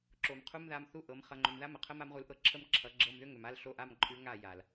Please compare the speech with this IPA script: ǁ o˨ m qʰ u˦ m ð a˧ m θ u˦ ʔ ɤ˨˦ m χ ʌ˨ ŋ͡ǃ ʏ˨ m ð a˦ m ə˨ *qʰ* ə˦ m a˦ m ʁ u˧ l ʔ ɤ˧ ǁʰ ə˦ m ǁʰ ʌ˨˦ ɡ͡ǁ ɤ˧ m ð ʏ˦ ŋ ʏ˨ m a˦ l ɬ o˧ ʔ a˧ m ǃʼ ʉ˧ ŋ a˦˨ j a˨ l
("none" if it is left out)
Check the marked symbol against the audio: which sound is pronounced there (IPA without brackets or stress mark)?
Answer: qʰ